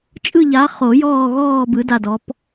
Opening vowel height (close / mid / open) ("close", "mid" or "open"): close